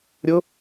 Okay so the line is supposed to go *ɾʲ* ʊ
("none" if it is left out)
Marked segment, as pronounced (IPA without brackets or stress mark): ɾʲ